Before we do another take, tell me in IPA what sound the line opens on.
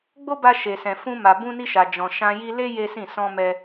ɡ͡b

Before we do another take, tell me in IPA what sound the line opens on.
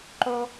ǃ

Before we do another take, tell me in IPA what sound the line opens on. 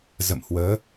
z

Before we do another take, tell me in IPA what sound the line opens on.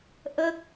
ʔ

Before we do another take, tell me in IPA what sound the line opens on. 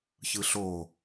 ç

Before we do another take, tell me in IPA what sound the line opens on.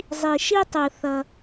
zˤ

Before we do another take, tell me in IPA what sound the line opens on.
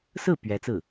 s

